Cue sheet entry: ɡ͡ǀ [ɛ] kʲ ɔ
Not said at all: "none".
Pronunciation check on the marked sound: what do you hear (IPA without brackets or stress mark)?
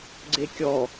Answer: e